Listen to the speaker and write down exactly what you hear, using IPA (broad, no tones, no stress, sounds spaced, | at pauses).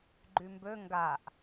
ɡ͡ǃ y m b ø ŋ ɡ a ʔ